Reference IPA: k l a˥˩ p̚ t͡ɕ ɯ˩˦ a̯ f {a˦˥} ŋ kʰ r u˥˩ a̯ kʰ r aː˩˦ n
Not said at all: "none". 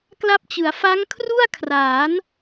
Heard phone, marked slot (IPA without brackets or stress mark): a˦˥